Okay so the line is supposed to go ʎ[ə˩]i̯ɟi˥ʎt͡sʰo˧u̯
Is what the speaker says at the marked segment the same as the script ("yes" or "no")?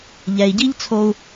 no